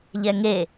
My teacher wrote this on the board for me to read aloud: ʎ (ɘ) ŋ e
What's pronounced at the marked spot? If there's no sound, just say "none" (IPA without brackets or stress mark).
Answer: ɛ